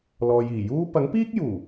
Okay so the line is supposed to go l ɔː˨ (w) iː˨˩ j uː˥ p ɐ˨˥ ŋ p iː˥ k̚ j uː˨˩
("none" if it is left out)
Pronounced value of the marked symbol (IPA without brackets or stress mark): j